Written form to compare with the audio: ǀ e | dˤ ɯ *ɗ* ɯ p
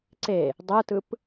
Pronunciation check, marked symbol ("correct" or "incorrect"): incorrect